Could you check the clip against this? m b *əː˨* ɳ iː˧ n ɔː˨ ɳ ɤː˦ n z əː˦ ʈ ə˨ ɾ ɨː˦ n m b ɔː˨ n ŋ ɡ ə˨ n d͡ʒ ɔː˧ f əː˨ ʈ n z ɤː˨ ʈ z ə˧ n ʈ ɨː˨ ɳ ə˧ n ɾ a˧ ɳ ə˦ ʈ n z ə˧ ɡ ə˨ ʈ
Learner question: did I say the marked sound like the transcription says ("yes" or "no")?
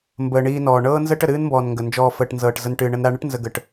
yes